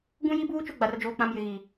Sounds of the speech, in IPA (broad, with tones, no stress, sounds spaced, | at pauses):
ɡ ũ˦ j i˦ b uː˦ t͡ʃ o˦ ɡ͡b a˨ r d͡ʒ oː˨ k͡p ã˨ m j ɪ˨ ɣ i˨